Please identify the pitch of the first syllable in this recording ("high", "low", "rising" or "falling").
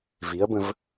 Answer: rising